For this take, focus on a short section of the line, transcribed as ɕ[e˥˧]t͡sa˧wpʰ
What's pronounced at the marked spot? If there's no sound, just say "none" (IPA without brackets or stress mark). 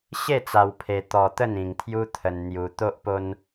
e˥˧